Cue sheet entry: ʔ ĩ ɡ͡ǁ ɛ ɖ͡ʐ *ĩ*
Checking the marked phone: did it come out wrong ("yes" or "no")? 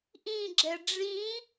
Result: no